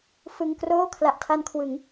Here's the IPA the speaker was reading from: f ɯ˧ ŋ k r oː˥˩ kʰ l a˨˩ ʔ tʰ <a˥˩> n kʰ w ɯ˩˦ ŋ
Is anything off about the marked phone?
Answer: yes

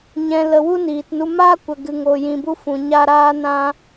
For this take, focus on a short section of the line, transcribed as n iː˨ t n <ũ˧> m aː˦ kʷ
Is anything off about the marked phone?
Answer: yes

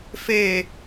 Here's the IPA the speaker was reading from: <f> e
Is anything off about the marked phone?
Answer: no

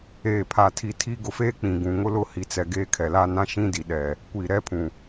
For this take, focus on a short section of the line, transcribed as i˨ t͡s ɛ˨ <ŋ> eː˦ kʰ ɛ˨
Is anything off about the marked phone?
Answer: yes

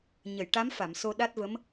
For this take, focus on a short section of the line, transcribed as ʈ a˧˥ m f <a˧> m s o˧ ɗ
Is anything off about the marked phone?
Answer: yes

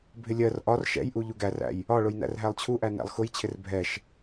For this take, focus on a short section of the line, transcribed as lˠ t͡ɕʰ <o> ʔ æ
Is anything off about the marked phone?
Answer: yes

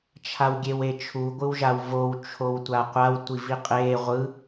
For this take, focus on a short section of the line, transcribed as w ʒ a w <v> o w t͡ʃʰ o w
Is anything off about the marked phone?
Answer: no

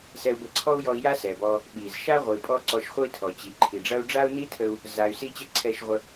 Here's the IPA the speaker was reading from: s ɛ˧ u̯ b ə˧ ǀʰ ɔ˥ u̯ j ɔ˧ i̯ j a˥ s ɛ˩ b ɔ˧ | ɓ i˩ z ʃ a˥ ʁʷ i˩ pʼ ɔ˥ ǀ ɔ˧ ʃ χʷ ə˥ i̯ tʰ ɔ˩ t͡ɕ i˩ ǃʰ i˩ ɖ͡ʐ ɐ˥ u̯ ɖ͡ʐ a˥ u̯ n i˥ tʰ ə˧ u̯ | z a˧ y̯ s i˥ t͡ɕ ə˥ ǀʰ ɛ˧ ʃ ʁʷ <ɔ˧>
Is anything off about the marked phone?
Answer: yes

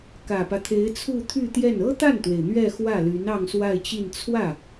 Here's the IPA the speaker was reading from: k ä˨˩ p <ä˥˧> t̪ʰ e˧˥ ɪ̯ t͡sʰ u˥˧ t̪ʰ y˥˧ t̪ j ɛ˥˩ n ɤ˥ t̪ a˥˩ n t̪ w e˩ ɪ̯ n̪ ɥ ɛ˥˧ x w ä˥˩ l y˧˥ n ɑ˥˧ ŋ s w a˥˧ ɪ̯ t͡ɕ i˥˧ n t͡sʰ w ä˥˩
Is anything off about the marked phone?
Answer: yes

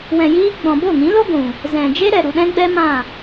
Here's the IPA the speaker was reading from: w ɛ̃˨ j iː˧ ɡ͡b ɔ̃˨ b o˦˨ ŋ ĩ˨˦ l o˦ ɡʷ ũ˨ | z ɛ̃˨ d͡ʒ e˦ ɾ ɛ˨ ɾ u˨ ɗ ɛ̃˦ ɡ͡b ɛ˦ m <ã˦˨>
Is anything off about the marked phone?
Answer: no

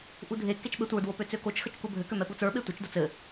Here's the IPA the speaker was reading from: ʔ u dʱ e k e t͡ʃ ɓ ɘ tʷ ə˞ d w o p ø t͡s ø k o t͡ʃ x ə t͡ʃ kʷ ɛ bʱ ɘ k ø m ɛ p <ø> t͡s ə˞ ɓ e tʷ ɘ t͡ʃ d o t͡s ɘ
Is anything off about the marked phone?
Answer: yes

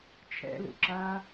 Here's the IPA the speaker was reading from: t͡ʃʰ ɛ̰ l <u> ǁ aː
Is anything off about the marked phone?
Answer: yes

